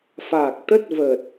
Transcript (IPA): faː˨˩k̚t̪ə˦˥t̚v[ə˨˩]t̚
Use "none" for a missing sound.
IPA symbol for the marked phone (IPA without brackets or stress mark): ə˨˩